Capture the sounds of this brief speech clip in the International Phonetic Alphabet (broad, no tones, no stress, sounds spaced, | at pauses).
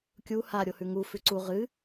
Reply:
kʲ u h a ɾʲ o h ʉ ŋ u f ʉ ǀ u ʁ ɨ